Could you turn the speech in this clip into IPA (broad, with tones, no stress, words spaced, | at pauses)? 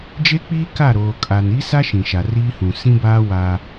d͡ʒe˦k͡piː˦ ka˦˨ɾoː˨ kʼa˨n i˦sa˦ ʃĩ˨ʃa˨riː˦hũ˨ sĩ˦baː˦ wa˦